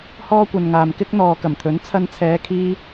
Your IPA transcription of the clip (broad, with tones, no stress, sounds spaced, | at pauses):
h ɔː˥ kʷ ɐ˨ n ŋ aː˨ m k ɪ˥ k̚ n̪ ɔː˨ k ɐ˨˩ m t̪ʰ ɵ˨˥ n t͡sʰ ɐ˧ n t͡sʰ ɛː˨˧ kʰ iː˥